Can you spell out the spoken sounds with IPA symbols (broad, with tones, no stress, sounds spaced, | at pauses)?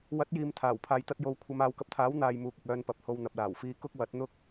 w ɐ˨˥ t̚ j iː˨ m t̪ʰ aː˨˩ w pʰ aː˨ j t̪ ɐ˧ t̚ j o˨˧ w kʷʰ ɐ˨˧ m aː˨˧ w k ɐ˧ p̚ t̪ʰ aː˨˥ w n̪ aː˨ j m uː˨ k̚ ɪ˨ k̚ œː˧ n p ɐ˨ p̚ h o˧ w n̪ ɐ˨ p̚ l aː˨˩ w f iː˧ k ʊ˥ k̚ w ɐ˨˥ t̚ n̪ ʊ˥ k̚